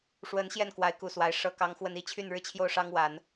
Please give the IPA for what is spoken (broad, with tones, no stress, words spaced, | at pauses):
ʂwə˧˥n ɕjɛ˥˩nkwa˧˥ɪ̯ku˨˩ swa˧˥ɪ̯ʂɤ˥kɑ˥ŋxwə˥n i˥˧t͡ɕʰy˥˩nɻɻ̩˥t͡ɕʰjo˥˩ʊ̯ ʂɑ˥ŋwa˨˩˦n